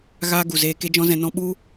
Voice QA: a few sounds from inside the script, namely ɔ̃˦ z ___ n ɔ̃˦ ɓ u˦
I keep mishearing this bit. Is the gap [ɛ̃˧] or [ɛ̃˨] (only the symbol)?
ɛ̃˧